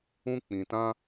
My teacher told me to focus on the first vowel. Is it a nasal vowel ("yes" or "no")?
yes